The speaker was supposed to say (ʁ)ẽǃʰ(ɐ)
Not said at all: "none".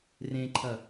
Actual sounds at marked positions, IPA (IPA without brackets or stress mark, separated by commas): r, ɐ